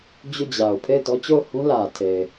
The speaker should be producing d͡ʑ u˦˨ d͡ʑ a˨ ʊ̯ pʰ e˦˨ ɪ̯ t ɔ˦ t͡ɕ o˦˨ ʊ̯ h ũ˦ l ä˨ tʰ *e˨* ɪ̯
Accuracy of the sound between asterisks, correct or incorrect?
correct